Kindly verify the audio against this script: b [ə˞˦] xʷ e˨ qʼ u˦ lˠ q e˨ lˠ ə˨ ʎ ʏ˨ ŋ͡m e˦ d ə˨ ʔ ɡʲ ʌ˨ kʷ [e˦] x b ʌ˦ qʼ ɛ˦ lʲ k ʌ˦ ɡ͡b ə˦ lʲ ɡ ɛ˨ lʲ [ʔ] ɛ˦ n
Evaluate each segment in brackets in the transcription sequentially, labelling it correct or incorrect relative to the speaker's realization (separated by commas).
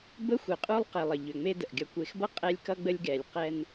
incorrect, incorrect, incorrect